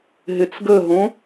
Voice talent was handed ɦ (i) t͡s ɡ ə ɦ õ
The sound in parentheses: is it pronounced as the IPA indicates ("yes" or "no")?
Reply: no